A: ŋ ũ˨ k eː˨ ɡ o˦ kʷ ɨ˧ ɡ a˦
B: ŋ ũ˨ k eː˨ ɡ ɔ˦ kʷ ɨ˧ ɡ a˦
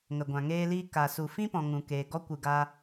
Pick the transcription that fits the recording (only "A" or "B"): B